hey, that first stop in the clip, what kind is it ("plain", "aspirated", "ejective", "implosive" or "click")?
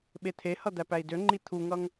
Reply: implosive